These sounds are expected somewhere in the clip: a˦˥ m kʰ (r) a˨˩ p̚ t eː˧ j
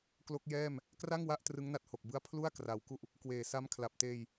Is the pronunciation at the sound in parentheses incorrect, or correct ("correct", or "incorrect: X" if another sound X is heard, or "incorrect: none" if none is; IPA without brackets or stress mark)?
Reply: incorrect: l